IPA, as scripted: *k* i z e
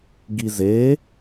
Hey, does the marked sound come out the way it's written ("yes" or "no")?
no